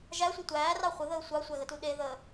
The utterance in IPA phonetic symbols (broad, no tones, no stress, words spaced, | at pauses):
ʒæsʷe tʷæːrɑ χʷəðəː sʷɑsʷæɣətu ɗeðəː